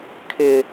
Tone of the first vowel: high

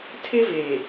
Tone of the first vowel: high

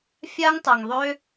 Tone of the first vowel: high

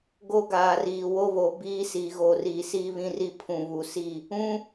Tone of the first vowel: high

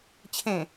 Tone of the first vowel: low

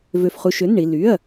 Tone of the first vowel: low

